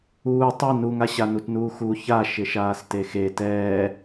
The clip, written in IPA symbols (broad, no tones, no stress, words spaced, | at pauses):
uː tˤe nuŋa ɕanutnuːxu ça ʃɪʃaːstexe tɛː